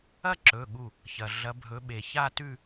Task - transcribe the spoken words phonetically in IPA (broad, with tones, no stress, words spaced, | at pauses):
ɐ˥˧ǁɵ˩˧˩ɠu˧˩ | çɐ˩ ɮɐ˩˧bʱɵ˩˧ ɓe˩ ça˥˧tʉ˥˧